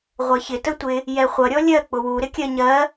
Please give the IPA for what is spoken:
ʁʷɜçɪ tətʷɪ | jɛχʷʌ ɾʲɔlʲɜ k͡pʊwu ɾɪkʲɜɲɜ

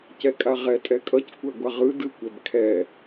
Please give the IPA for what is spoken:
cɛkʼaʁɛ tʼɛkʼʌc kʷɛɡʷaʁɯ dɯkʷɛb kʰɛ

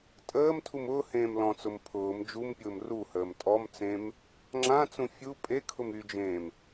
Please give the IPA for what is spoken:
tʼəːm tʰumʊːhẽːm lɔ̃t͡sʊm pʰʊːm d͡ʒumpʲʊːm ruhəːm tʼɔmt͡sẽm | ŋ͡ǁãt͡sũ fʲu pʼekʰʊm yd͡ʒẽːm

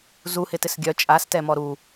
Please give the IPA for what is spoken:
zuhɪtɪs ɡʲœ t͡ʃʼastɛmɔ ɾu

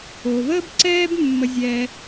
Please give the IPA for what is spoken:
o˩vəː˥b ǀɛː˥b mːə˧ zʲɛː˧

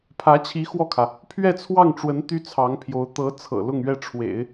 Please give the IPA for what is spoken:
pʰä˧˥t͡ɕʰi˧˥ xwɔ˥˩kʰä˩ | pʰɥɛ˥˧t͡sʰwɑ˥˩ŋʈ͡ʂwə˧˥n t̪y˥t͡sʰɑ˧˥ŋpʰjo˧˥ʊ̯ t̪ɤ˧˥t͡sʰɤ̰˨˩ lʊ˥˧ŋɥɛ˥˩ ʈ͡ʂʰwḛ˨˩˦ɪ̯

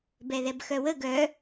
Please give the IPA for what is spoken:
bɛðɛbxœwə ɡœ

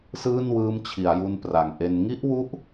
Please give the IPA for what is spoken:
sɯː˥˩nwɯː˦˥mt͡ɕʰi˩˦a̯ju˧n pra˩˦ŋʔe˧n ŋi˦˥ʔwu˦˥ʔ

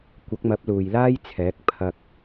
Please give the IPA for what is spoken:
kʷɐ˨˥k̚mɐ˨˥p̚ luː˨jlaː˥jt͡sʰɛː˨˥k̚ pʰɐ˧k̚

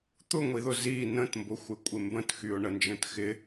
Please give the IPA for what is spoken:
t̪ʊŋʷiðʊ zi nə̃tmbʊxʷɪkʷʼɪ mbə̃txyʊ̯ɳənd͡ʒə̃t xɪ

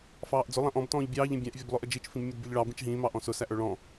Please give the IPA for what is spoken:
fɑːʔd͡zʊ lˠæ̃ʔɔ̃b tɔ̃ːʎbʲɑːʎ ĩbʲæ̃ʔ vʲɔblˠʊʔəd͡ʒit͡ʃ fĩbmʲʌdbʲʌʎɭɑ bĩt͡ʃɦĩː mɑʔɔ̃sʊ sæʔə˞ɭɔ̃

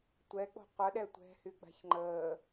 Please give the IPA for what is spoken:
tʷɛk͡po̤ qʷəɗɛ tʷɛ̤hyɡ͡ba̤ç ŋ͡ǃəː

